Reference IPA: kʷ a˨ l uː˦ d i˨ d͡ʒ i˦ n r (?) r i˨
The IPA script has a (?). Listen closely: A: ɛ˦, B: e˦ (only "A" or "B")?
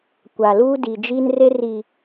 B